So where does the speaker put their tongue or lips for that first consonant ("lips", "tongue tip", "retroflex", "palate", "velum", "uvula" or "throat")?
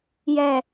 palate